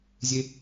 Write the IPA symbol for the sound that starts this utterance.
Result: zʲ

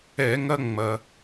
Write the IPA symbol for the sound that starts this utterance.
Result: ɛ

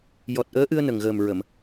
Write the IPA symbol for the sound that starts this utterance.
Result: j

